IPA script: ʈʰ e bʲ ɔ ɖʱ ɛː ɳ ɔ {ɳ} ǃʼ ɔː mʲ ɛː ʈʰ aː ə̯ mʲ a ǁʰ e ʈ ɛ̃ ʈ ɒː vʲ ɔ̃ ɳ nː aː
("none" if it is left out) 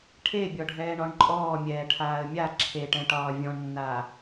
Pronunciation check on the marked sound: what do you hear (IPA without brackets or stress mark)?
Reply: ɳ